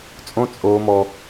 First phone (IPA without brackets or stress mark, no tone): t͡sʼ